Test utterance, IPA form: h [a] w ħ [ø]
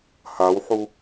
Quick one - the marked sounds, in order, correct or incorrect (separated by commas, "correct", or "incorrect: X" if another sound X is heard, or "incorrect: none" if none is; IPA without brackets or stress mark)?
correct, incorrect: u